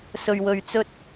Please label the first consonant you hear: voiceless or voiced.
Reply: voiceless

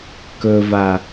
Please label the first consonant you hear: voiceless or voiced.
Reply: voiceless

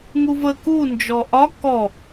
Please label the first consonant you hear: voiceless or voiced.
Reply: voiced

